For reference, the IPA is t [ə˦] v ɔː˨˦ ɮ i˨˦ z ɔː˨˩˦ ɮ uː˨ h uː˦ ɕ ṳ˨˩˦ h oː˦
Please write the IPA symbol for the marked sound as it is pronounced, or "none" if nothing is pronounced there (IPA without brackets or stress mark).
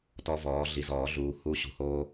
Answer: ɔ˦